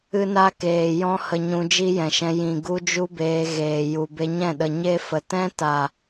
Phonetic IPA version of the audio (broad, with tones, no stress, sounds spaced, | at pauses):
ɨ˦ n a˦ k eː˨ j ɔ̃˦ h ə˧ ɲ ũ˧ d͡ʒ i˦ j ɛ̃˨ ʃ ɛ̃˧ j ĩ˨ ɡ u˦ d͡ʒ u˦ b eː˧ ɣ eː˨ j u˨ b e˧ ɲ ɛ̃˦˨ ɗ ə˨ ɲ e˦ f ə˨ t ɛ̃˦ t a˨